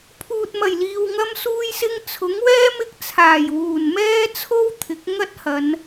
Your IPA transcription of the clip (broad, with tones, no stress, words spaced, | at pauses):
pʰuː˨t̚mɐ˨˩jliː˨w ŋɐ˧msuː˧jsɪ˧ŋ t͡sʰʊ˨˥ŋwɛː˥ mɪ˧k̚ t͡sʰaː˨˩jwuː˨˩n mɛː˥t͡sʰo˥wt̪ʰɪ˨˥k̚ ŋɐ˥t̚hɐ˨˧n